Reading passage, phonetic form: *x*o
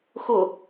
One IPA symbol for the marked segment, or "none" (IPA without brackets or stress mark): x